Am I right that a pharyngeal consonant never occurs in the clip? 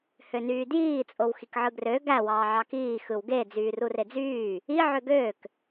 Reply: no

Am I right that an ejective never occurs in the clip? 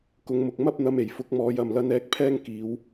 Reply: yes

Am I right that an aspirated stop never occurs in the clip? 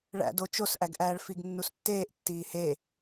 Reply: yes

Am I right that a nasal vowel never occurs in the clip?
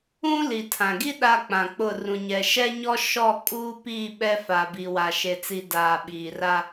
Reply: no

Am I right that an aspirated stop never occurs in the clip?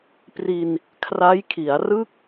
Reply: no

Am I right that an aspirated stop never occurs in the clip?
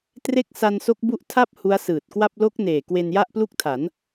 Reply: no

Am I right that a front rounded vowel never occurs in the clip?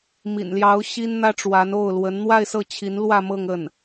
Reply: yes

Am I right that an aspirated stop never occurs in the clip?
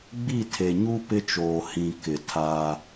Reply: no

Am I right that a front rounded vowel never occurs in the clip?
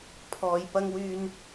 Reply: no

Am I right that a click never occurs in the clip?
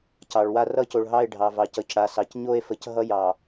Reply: yes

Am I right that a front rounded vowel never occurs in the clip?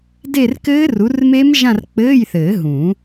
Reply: yes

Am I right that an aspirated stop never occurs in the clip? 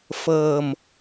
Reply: yes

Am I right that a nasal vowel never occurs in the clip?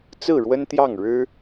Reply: yes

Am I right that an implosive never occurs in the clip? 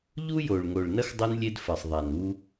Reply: yes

